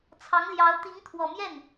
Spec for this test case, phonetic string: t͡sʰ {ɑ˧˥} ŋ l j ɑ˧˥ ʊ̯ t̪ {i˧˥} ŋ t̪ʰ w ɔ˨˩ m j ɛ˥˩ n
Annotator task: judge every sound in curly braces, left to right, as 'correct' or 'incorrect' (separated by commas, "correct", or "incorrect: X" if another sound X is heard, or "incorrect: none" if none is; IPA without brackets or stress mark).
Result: correct, correct